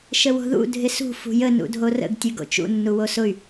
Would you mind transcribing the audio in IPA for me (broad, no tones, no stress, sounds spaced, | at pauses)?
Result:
ʃ ə w o̤ ð ṵ dʱ ɪ s ṳ f ṳ j ə n ṵ dʱ o r ə̰ ɡ tʲ ʉ ɡ o̰ t͡ʃ ṵ nː u w o s ʊ y̯